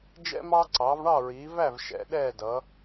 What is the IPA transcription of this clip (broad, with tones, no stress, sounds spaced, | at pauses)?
d͡ʒ ɛ̰˦ m ɑː˦ ǀ ɑː˩˧ v ɳ ɑ˦˨ ɹ iː˩˧ v æ˦˨ v ʃ ɛ̰˩˧ ɗ ɛː˦˨ d ʌː˩˧